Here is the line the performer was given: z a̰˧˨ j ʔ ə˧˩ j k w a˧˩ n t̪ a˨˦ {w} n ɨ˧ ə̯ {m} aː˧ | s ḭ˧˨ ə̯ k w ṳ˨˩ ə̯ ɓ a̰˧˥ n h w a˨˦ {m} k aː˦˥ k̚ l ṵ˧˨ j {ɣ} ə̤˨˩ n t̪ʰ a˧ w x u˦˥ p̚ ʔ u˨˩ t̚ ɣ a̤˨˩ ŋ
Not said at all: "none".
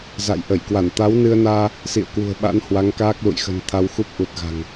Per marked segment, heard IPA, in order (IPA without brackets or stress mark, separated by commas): w, n, ŋ, x